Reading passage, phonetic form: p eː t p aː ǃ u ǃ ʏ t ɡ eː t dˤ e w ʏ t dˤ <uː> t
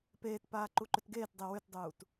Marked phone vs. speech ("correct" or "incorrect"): correct